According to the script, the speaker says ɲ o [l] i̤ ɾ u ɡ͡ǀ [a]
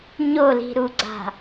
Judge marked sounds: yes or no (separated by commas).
yes, no